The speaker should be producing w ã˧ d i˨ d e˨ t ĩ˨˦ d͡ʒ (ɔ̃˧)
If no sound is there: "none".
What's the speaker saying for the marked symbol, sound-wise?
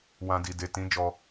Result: ɔ˧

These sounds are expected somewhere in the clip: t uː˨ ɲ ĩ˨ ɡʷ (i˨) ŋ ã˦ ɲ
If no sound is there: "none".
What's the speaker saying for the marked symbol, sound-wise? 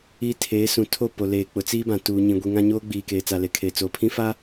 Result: i˨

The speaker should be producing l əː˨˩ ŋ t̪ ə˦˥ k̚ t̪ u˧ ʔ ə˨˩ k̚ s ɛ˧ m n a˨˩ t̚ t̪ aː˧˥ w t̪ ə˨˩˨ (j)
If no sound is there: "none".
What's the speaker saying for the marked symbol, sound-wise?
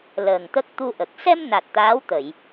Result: j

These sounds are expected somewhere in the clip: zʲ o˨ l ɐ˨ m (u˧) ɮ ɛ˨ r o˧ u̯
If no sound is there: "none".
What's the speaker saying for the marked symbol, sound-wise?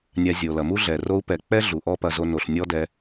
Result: u˦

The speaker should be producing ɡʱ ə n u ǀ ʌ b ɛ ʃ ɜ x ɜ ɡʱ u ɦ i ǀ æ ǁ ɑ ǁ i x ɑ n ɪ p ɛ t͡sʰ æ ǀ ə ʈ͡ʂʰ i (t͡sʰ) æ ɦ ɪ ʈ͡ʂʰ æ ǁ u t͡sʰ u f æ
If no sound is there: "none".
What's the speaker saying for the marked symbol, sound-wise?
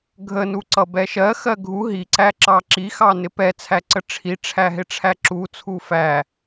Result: ʈ͡ʂʰ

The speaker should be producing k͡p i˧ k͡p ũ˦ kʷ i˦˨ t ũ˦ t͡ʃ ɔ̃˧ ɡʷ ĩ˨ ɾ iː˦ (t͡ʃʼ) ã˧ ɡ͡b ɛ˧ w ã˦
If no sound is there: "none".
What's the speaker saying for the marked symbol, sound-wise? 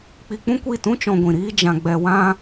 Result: d͡ʒ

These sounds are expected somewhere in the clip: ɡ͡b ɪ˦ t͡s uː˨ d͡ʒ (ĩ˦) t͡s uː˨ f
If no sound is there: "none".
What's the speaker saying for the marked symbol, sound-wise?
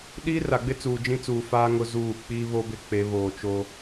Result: ĩ˦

